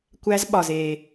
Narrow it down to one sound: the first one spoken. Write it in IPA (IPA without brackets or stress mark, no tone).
kʷ